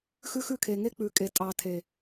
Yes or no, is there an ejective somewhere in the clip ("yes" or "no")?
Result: yes